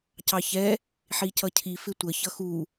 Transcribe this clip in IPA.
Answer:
cɑçɛ | ħicʌcʰi fɪtʷə çʌxu

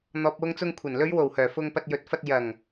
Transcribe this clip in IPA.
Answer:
n̪ɔː˨p̚wʊ˧ŋt͡sʊ˧ŋ kʷʰɐ˨˩nlɵ˨˧ɥwo˨˩whœː˨˩ fʊ˧ŋpɐ˧t̚ jɵ˨˥t̚fɐ˧t̚ jɐ˨˩ŋ

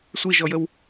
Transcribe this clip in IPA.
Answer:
sʷiʒɔjəw

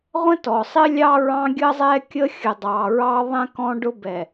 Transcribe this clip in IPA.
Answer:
ʁʷə̃˦tɔ˨sˤɪ˦ lʲɑ˦ɹɑ̃˦ɡʲə˦ zˤɛ˦kʲə˦ xʲə˨dˤɑ˨ɹɑ˦ðˤɛ̃˦ kɔ̃˦ɖʊ˦bɛ˨

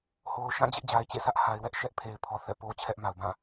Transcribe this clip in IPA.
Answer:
ho˨ʊ̯ʃã˦˨ d͡ʑɪ˦ʔd͡ʑa˨ɪ̯t͡ɕḛ˦˨sä˦ʔ ha˨ɪ̯wɛ˦ʔ ʃɛ˦ʔpʰe˨ɪ̯pʰɔ˨ θɛ̰˦˨po˦ t͡ɕʰɛ˦ʔma˨ʊ̯bã˦˨

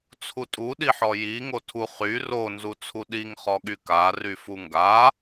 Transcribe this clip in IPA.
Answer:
t͡sʰutʼu ɗiħɔji ŋotʰu χy ro nzut͡sʰuɗiŋ χɔɠyka ryfuŋɡa

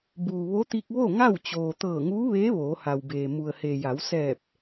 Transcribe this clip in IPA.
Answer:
buː˩ ʋo˧˥t̪i˧k̚ ʋo˥˨ ŋa˥˨wt͡ɕoː˩ t̪ɤː˧˩ŋuː˧˥ʋeː˧˥ ʋoː˩˧ha˩wbeː˩ mu˩ə̯he˩ja˩˧w sɛː˧˩p̚

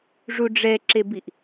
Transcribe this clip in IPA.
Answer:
ʐuɖ͡ʐɛǁebiʔ

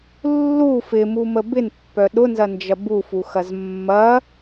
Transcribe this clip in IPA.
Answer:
lːu fɪmumə bɪnpːœ ɗʊnzɐnd͡ʒɐ bufuxɐz mːɐ

